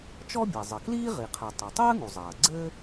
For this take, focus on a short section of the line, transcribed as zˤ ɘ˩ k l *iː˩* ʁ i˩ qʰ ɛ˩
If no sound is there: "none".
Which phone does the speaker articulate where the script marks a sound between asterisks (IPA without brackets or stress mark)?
iː˥